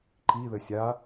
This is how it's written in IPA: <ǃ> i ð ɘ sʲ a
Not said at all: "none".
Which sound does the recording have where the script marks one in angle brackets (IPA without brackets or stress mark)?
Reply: ǃ